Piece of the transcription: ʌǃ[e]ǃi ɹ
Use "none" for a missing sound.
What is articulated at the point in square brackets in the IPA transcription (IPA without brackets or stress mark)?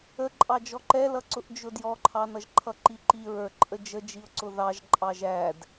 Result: i